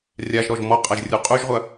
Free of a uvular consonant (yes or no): no